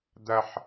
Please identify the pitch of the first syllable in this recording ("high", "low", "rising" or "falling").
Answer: high